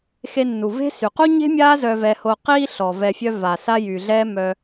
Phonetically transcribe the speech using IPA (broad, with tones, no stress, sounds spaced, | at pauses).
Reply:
x e˧ nː u˩ v e̤˥ s y˩ q u˥ ɲ e̤˥ mʲ aː˥ z œ˧ v ɛ˧ h o˧ q iː˧ ɬ ɔ˩ v ɛ˧ fʲ œ˥ v a˩ s a˥ j yː˩ ɮ ɛː˥ m œ˧